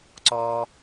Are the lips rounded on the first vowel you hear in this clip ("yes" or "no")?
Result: yes